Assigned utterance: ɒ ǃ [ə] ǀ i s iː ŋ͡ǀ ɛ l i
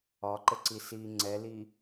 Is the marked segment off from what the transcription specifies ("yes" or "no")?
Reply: no